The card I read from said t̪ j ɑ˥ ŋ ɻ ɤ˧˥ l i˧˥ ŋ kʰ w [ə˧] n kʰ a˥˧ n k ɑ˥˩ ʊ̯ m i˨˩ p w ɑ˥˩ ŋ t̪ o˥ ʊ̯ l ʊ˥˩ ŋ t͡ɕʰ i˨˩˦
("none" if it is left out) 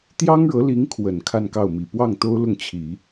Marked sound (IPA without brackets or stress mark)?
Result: ə˨˩